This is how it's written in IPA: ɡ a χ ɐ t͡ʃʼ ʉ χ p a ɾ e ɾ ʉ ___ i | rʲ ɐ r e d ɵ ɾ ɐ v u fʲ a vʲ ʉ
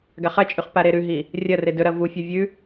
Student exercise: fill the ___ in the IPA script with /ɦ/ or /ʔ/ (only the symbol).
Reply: ɦ